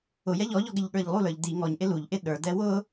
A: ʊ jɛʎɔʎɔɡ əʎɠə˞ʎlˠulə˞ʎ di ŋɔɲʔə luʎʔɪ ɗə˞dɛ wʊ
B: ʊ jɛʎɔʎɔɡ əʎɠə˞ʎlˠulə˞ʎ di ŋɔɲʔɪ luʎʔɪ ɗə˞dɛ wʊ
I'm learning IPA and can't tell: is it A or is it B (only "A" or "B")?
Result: B